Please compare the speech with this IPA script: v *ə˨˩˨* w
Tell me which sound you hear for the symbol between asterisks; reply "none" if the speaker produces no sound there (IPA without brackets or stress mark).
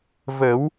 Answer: ə˨˩˦